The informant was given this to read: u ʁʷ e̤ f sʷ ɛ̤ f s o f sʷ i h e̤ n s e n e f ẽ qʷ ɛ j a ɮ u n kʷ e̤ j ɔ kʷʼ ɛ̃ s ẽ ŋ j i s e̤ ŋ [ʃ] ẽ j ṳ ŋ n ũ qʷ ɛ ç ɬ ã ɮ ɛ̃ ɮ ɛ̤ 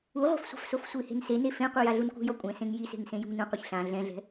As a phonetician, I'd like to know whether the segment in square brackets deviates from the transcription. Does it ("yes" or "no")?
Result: yes